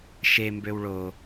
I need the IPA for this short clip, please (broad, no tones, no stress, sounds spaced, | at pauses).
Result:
ʃ e m b ø w ɭ o